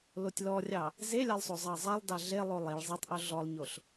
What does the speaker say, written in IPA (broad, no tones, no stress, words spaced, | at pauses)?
lotʲlɔrʲɑ | zelʲɑlˠsˤozˤɑ zˤalˠdɑ ɮe lˠolˠiɭ zˤitˤʔo ɮɔlˠɲoɬ